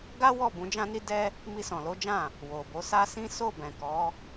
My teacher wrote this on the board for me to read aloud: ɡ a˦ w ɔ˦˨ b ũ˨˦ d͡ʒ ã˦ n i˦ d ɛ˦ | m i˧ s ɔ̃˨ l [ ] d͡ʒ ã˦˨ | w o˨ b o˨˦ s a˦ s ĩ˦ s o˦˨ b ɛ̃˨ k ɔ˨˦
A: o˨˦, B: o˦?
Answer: A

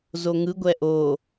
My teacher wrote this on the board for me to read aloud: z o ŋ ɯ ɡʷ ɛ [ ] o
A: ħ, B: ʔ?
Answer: B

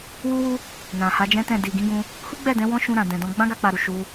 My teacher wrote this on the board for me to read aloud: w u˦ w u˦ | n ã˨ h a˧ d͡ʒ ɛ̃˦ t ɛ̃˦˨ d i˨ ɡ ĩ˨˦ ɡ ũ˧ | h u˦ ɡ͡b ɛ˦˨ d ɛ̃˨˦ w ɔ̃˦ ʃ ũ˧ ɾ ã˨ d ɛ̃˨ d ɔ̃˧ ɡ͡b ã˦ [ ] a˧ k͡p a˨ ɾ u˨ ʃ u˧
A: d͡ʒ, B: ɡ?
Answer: B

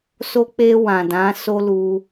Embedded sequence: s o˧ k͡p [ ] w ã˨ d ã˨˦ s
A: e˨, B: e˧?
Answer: B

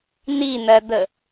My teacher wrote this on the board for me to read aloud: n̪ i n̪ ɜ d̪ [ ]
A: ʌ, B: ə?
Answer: B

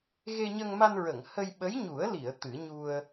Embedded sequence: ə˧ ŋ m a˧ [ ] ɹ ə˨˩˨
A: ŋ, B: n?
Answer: B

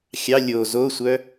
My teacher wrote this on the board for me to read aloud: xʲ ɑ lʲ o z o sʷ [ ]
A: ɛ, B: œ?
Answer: B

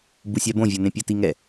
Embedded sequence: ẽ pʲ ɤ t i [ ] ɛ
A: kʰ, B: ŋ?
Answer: B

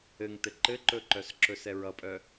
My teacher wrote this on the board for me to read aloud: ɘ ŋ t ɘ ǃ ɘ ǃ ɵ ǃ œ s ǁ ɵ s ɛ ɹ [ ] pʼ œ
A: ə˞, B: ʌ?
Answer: B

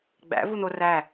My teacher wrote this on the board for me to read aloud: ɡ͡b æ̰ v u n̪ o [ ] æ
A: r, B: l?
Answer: A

